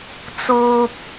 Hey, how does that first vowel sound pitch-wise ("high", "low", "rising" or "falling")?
low